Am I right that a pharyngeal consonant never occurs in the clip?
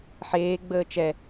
no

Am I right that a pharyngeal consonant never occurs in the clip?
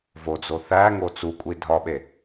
yes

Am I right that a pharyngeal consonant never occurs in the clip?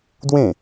yes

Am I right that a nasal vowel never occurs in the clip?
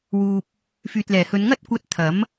yes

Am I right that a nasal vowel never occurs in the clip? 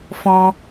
no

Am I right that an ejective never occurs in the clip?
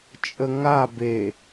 no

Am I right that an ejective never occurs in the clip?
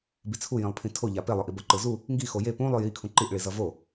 yes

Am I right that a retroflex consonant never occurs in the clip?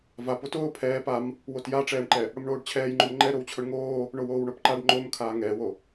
no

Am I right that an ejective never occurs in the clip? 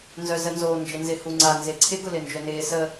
yes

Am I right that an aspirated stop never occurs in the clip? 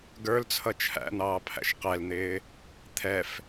no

